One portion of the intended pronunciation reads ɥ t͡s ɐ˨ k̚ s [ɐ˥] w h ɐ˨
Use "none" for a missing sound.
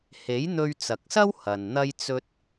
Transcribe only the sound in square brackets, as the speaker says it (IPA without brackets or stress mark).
ɐ˥